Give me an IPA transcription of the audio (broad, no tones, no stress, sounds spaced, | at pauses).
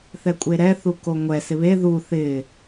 θ ɛ kʷʼ e ɾ ɛ θ u k o ŋʷ ɛ s ɪ β e ð u θ ɪ